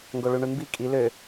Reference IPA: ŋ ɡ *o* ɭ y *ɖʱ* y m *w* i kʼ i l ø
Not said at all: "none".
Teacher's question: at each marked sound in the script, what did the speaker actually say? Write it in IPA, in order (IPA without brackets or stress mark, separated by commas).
o, ɳ, b